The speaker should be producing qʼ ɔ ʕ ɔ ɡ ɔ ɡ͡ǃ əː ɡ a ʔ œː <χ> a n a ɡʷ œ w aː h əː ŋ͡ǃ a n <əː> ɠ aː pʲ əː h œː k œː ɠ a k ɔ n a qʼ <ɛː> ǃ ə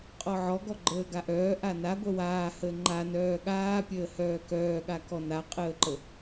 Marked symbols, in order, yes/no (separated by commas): no, no, no